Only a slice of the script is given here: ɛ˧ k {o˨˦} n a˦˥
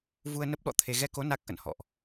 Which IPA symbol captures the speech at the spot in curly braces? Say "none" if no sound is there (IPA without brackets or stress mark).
o˨˦